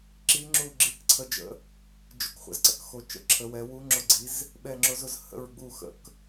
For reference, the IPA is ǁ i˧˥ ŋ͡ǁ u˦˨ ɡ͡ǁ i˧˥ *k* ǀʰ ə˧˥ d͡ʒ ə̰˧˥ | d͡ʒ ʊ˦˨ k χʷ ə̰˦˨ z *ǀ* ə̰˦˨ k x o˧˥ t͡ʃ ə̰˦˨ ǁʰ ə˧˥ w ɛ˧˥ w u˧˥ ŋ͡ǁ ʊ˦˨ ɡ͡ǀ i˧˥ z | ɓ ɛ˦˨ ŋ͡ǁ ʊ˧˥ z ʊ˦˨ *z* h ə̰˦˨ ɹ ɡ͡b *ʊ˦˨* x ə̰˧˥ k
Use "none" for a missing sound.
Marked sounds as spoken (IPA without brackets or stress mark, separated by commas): k, ǀ, z, u˦˨